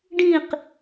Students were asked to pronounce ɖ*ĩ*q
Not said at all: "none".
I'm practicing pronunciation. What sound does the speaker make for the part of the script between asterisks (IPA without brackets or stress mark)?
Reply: ĩ